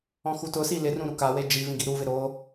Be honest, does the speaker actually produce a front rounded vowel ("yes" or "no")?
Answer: no